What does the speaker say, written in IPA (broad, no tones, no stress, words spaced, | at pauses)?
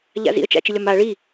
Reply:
ʎa̰zḭə̯ t͡ʃa̰t͡ʃɪlʲɒma ɭi